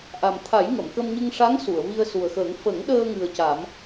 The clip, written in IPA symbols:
ʔ a˨˩ m t̪ʰ a˨˩˦ j ŋ ə˨˩˨ m k ə˧ m ɲ ɨ˧ ŋ ʂ a˧˥ ŋ s u˨˩˨ ə̯ v i˧ ə̯ s u˨˩ ə̯ x əː˨˩˦ ŋ f ə˨˩˦ ŋ ɗ əː˧ ŋ ɨ˨˩ ə̯ c a˨˩˦ m

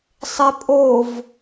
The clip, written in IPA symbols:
sˤ e pʼ o v

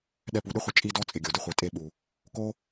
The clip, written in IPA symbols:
ɗ ɛ˧ p u˨ ɗ ɪ˦ χʷ ɪ˧ t͡ʃʼ i˦ d ɔ˦ t͡sʼ ɪ˨ ɡʲ o˨ d ɪ˦ χʷ i˨ tʼ e˧ ɓ u˨ | k o˦

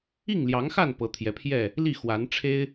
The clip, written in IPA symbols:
i˥˨ ŋ l j ɑ˨˦ ŋ x a˥˨ n p ɤ˨˦ t̪ʰ j ɛ˨˦ pʰ j ɛ˥˨ | l i˥˨ x w a˨˦ n ʈ͡ʂʰ e˦ ɪ̯

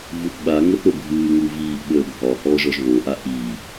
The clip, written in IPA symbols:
v u θ ɓ a ŋ ə θ ɾ o bʱ ɨː ŋ u v iː ʔ ɓ əː bʱ ɒ h ɔː ʒ ɔ ʒ β o ʔ a ʔ i

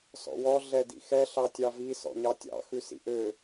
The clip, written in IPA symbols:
s ɔ̰ w ɔ ɮ ɛ d ḭ x ɛ ɬ ɑ tʲ ɑ v i s ɔ̰ ɲ ɑ tʲ ɑ̰ x ʉ s ḭ ʔ ø

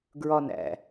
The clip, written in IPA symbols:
ɡ ɹ ɒ n æ̰

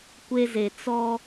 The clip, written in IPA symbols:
kʷ e˦ z e˨ t͡s ɔ˦

